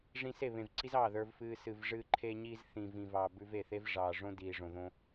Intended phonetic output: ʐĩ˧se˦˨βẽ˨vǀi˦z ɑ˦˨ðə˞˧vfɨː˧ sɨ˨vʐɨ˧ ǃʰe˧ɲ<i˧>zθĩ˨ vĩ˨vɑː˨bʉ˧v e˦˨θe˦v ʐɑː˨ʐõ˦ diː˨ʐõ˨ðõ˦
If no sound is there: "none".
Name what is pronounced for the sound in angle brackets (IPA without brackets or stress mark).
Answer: i˧